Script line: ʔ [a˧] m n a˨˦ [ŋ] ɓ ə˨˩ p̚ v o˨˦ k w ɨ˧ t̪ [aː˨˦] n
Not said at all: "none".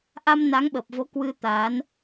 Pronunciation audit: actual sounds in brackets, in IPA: a˧, ŋ, aː˨˦

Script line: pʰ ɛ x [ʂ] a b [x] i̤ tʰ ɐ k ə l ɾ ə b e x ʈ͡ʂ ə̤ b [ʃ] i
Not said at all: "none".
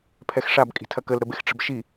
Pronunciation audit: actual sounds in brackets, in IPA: ʂ, kʼ, ʃ

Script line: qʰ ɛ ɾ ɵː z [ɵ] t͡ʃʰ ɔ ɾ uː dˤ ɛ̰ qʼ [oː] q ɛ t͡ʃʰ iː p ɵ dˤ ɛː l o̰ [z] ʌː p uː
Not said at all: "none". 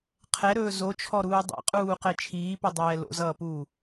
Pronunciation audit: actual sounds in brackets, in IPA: o, uː, z

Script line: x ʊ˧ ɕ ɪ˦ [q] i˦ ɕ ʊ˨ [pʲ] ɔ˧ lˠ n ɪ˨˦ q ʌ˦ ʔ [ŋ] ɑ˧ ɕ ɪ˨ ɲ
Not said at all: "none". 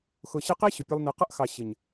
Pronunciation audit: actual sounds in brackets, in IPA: q, pʲ, x

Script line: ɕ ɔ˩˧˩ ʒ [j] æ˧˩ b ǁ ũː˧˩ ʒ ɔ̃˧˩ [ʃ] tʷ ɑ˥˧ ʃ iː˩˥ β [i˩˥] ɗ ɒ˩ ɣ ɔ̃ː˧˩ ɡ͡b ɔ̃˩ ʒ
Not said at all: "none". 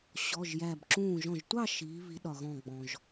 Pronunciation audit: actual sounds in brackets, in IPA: j, ʒ, i˩˥

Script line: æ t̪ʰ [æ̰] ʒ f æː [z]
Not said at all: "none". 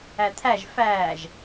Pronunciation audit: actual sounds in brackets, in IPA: æ, ʒ

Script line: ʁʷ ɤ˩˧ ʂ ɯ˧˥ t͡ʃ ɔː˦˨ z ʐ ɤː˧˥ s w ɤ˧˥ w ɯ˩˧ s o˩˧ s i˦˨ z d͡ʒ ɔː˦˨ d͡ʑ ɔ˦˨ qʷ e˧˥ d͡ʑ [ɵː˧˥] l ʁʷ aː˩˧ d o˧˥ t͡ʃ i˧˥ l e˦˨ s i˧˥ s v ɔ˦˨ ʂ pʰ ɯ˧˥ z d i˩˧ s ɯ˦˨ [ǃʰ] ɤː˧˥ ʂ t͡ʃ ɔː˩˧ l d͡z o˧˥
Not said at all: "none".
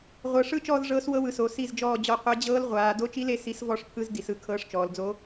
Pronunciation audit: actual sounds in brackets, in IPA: ɤː˧˥, kʰ

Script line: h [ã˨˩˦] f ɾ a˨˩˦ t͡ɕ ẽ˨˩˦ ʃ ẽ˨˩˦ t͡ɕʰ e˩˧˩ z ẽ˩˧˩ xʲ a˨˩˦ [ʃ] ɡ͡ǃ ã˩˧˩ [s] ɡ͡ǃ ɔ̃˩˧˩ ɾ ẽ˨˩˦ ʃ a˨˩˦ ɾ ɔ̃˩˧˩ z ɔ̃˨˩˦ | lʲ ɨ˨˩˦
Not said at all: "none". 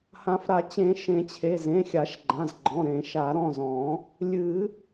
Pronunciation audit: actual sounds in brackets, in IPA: ã˨˩˦, ʃ, z

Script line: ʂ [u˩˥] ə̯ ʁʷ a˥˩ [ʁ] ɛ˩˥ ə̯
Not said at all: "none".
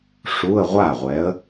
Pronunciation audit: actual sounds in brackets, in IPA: u˧˥˧, ʁʷ

